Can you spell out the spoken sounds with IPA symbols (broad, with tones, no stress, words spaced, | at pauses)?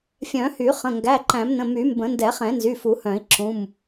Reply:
fʲœ̃˨˩˦hy˨˩˦χə̃˩˧˩ ŋɡæ˩˧˩ǃæ̃˨˩˦mnə̃˩˧˩ my˨˩˦mbə̃˨˩˦ ndɛ˨˩˦χɛ̃˨˩˦nzy˩˧˩ fu˨˩˦hœ̃˨˩˦i̯ ǁũ˩˧˩m